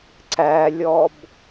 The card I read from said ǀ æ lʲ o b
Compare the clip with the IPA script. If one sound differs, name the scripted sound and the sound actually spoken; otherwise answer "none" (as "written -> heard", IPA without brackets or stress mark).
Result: o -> ɔ